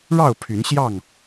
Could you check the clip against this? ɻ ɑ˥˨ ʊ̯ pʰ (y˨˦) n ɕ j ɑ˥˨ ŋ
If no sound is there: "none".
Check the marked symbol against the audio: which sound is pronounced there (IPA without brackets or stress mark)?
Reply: y˨˦